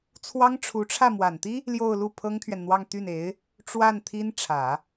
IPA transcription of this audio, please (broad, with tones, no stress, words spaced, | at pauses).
t͡sʰwɑ˥ŋʈ͡ʂʰu˧˥ʈ͡ʂʰä˥˩ mwa˨˩nt̪i˥ | ljo˥˧ʊ̯lu˥˩ pʰɤ˥ŋt̪ʰɥɛ˨nn̪wɑ˥˧ŋ t̪y˥˩ne˧˥ɪ̯ | ʈ͡ʂwa˥˩n t̪ʰi˥n ʈ͡ʂʰä˨˩˦